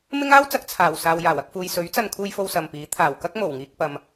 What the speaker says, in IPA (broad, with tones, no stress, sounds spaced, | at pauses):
m ɪ˥ ŋ aː˥ w t͡s ɐ˨˥ k̚ t͡sʰ aː˨˩ w s aː˨ w j aː˨˩ w ɐ˧ k̚ f uː˨ j s ɵ˨˥ ɥ t͡s ɐ˧ n kʰ uː˧ j f o˧ w s ɐ˨ m p iː˨˥ t̪ʰ aː˨˩ w k ɐ˥ k̚ m o˨˩ w ŋ iː˧ k̚ p ɐ˨ m